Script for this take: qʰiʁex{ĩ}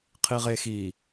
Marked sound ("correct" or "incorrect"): incorrect